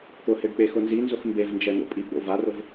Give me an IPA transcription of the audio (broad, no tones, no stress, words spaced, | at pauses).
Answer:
t̪ʊheɖ k͡pexʊnzinzʊx mbevnd͡ʒɛ n̪o̰pʼiɡ͡bo̰ varʊv